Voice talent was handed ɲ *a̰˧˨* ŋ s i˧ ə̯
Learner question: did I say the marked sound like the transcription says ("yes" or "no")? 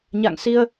yes